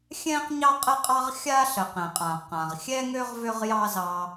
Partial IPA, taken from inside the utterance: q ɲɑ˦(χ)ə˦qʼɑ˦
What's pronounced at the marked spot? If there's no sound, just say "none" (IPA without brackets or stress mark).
qʼ